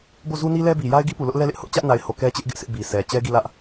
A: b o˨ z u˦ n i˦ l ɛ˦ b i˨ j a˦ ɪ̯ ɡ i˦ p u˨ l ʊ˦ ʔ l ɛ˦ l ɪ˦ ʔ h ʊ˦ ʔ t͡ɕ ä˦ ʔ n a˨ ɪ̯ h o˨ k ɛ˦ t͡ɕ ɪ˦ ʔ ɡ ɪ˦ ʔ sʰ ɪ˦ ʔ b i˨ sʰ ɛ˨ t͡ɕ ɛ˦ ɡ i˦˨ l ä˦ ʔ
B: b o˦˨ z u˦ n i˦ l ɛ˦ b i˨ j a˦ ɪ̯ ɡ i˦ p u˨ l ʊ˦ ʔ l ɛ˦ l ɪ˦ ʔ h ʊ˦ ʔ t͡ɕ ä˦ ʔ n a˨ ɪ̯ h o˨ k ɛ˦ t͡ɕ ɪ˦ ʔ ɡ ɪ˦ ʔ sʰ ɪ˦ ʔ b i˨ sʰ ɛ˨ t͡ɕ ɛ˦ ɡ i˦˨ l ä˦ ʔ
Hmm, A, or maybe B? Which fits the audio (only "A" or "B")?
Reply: B